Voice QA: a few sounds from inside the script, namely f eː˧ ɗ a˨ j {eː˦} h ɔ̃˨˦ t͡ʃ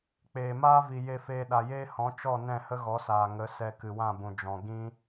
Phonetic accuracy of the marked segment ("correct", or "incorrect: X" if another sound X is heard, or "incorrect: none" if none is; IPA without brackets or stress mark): correct